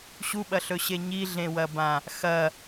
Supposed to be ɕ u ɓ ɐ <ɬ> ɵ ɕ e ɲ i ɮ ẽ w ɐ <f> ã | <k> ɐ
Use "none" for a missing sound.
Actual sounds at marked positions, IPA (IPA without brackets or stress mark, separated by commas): ɬ, b, x